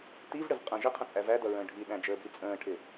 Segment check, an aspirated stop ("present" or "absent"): present